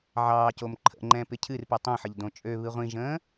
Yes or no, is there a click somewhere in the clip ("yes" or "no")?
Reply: yes